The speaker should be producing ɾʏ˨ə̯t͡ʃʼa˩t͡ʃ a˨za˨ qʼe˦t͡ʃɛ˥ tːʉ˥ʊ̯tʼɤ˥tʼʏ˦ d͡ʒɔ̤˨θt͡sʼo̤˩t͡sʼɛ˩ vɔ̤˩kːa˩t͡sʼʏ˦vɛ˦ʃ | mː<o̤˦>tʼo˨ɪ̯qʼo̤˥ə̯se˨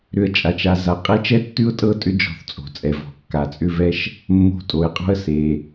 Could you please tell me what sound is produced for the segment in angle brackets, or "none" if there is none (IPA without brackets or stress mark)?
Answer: o̤˦